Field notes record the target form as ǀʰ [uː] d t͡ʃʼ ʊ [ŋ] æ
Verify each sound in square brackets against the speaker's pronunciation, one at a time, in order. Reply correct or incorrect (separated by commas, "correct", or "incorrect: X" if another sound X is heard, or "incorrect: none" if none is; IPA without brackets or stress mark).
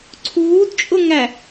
correct, correct